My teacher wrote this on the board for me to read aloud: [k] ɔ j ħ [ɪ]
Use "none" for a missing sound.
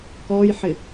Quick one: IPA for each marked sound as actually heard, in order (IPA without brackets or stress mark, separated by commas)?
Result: k, ɪ